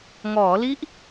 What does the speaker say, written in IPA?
ŋ ɔː˩˦ l i˦˥ ʔ

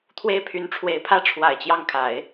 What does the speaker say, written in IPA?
t̪ʰ w e˥ ɪ̯ pʰ y˧˥ n ʈ͡ʂʰ w e˧˥ ɪ̯ pʰ ä˥ ʈ͡ʂʰ w a˨˩ ɪ̯ t͡ɕ j ɑ˥˩ ŋ kʰ a˨˩˦ ɪ̯

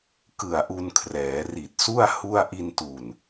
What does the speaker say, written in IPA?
k ɯ˨˩ a̯ ʔ u˧ n kʰ r ɛː˩˦ r i˨˩ t̚ s u˥˩ a̯ h u˥˩ a̯ ʔ i˧ n t u˨˩ n

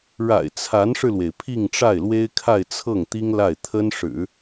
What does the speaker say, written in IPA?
ɻ a̰˨˩ ɪ̯ t͡sʰ a˧˥ n ʂ ɻ̩˧ l w e˩ ɪ̯ pʰ i˥˧ ŋ ʈ͡ʂ a˥˩ ɪ̯ l w e˥ ɪ̯ kʰ a˥˧ ɪ̯ t͡sʰ ɤ˥˩ ŋ t̪ i˥ ŋ l a˥˩ ɪ̯ t̪ʰ ə˥ n ʂ ɻ̩˨˩˦

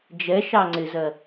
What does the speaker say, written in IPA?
d͡ʒ ɛ ʃ ɑ ŋ͡ǀ ɪ z ɜ

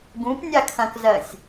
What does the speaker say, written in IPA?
ɡ ũ p nʲ a kʰ ɐ̃ k z ɜ sʲ

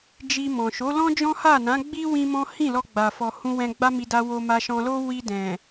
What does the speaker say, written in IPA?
d͡ʒ i˧ m ɔ̃˨ ʃ o˨˦ l ɔ̃˦ d͡ʒ ɔ̃˦ h a˦˨ n ã˨˦ ɡ͡b i˦ w ĩ˦ m ɔ̃˦ h ĩ˦˨ l ɔ˧ ɡ͡b a˨ f ɔ˨ h ũ˧ w ɛ̃˧ ɡ͡b a˦ m i˧ d a˧ w o˧ m a˧ ʃ ɔ̃˧ l o˦ w i˧ d ɛ̃˨

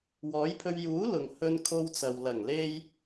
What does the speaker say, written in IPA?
w ɔː˨˥ j pʰ ɵ˧ ɥ j uː˨˥ l ʊ˨ ŋ h ɵ˧ n kʰ o˧ w t͡s ɐ˨ w l ɐ˨˩ ŋ l e˧ j

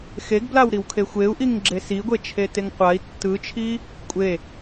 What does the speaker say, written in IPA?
x e ɡ b l a w ɾ i w kʰ e xʷ e u̯ ʔ i ŋ ɡ͡ǁ e s i ɡʷ e t͡ʃʰ e t e ŋ qʷ a i̯ tː ɯ t͡ʃʰ i | kʷʼ e

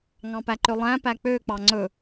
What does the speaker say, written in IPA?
ŋ ɑ̃ p æ ǃ ø lˠ æ̃ p æ k͡p ø k͡p ɑ ŋ͡ǀ ɵ

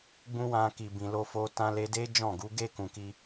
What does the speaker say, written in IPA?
ɡ͡b ũ˦ w ã˧ k i˨ b ĩ˨ l o˧ f o˧ t ã˧ l e˧ d e˦ d͡ʒ ɔ̃˦˨ ɡ u˨˦ ɡ e˦˨ k ũ˨ k i˧

